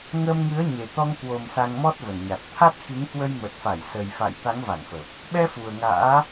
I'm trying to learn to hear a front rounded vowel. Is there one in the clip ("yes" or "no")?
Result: no